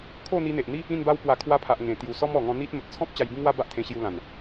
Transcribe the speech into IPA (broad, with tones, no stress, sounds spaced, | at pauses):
kʰ o˥˧ n̪ i˧ n̪ e˨ ʔ n̪ i˦ | ĩ˥˧ n b a˦ w p w a˧ kʰ w a˧ pʰ a˨ ʔ ŋ ẽ˨˩ t̪ j u˨˩ s ɔ˦ m ɔ˨˩ ŋ ɔ̃˧ n̪ i˦ t̚ m ə˨ t̚ t͡sʰ ɔ̃˦ p̚ t͡ɕ a˧ j b ĩ˦ ŋ w a˦ b a˦ ʔ t̪ʰ ẽ˧ ɕ j u˧ l ã˨˩ n